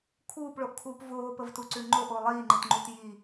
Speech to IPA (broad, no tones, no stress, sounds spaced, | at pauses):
kʰ uː p ɭ o ʔ kʰ uː p v oː p ə v t u ǀ ʉ ŋ͡ǃ o ʔ o lˠ iː ŋ͡ǃ ɨ t ŋ͡ǃ u t j i